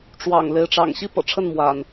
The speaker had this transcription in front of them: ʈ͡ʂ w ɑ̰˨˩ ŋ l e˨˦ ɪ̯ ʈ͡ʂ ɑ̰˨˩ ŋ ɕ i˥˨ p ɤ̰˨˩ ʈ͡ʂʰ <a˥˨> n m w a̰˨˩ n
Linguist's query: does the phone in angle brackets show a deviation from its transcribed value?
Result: yes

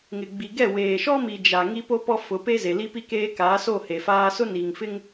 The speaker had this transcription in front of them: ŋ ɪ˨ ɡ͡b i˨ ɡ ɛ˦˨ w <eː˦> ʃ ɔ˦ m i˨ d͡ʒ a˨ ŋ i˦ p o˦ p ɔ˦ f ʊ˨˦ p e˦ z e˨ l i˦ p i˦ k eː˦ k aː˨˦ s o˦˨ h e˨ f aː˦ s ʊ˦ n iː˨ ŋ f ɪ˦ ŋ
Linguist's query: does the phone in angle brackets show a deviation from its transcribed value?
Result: yes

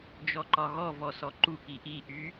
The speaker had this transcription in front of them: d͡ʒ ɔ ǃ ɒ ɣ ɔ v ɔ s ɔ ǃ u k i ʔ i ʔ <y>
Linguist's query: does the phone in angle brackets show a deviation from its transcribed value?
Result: no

